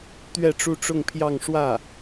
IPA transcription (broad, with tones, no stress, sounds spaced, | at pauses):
t̪ ɥ ɛ˥˧ ʈ͡ʂ u˥˧ ʈ͡ʂ ʊ˥˧ ŋ pʰ j ɑ˥˧ ŋ ʂ w ä˥˩